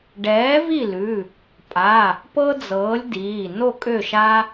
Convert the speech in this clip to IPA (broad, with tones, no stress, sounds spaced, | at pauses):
ɖ ɛː˨˥ v i˥˨ l ʉ˩˧˩ | pʼ a˩˧˩ | p ɤ˥ d͡z ɤː˨˥ lʲ d iː˩˧˩ n o˥˨ kʼ ø˥˨ ʃ a˥